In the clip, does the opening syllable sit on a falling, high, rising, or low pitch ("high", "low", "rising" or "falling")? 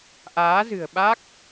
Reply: rising